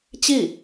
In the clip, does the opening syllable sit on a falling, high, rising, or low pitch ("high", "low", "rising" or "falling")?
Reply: falling